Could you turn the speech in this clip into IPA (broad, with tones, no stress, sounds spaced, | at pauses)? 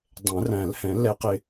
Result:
dˤ ɛ̃˨˩˦ r æ̃˨˩˦ l h ɛ̃˨˩˦ l ɛ˧˥ q ɪ˧